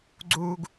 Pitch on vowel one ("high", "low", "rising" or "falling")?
high